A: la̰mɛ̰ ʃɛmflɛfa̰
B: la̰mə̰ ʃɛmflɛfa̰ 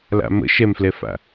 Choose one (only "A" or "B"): B